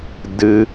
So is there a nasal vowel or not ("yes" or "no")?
no